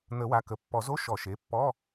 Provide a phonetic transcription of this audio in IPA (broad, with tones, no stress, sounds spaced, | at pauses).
n̪ ə˨˩˦ w a˩˧˩ k ə˩˧˩ pː ɔ˨˩˦ z o˧˥˧ ʃ ɔ˨˩˦ ʃ e˩˧˩ pː ɔ˧˥˧